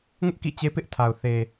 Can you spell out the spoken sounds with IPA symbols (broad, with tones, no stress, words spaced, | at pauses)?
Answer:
ŋʊ˦ʔ kḭ˦˨t͡ɕe˦ pɪ˦ʔtʰa˨ʊ̯ θe˨